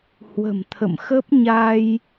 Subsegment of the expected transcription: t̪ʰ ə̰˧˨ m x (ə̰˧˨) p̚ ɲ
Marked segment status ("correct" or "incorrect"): incorrect